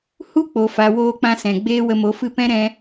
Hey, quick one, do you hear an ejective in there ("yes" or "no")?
no